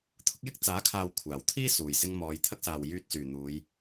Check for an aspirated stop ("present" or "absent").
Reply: present